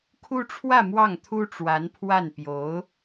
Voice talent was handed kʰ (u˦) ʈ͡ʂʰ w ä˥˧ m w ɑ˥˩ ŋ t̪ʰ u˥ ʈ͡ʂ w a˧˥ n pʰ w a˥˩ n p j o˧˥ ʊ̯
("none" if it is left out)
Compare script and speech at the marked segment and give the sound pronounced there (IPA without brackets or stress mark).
u˥